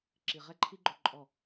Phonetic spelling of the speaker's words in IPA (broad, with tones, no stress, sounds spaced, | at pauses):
ǁ i˨ ʁ ɛ˦ ǃʰ i˦ ɡ͡ǃ ɵ˧ ǃʼ ɔ˦˨